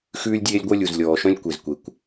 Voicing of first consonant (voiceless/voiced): voiceless